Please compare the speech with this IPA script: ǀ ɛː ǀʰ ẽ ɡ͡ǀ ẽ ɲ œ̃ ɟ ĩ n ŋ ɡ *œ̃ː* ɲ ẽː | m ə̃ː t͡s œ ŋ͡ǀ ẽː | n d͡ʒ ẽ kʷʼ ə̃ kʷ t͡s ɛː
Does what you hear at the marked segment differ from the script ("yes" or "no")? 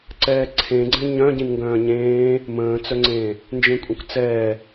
no